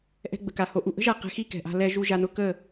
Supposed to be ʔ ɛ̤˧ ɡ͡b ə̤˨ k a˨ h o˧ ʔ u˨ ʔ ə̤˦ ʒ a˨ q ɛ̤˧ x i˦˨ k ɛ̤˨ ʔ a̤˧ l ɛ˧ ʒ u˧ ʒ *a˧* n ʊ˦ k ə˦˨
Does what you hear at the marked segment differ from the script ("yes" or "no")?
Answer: no